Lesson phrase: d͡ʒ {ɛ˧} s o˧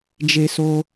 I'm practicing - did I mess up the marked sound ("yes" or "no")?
yes